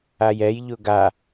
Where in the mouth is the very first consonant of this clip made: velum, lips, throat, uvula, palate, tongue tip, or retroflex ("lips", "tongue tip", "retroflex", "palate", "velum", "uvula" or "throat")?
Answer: palate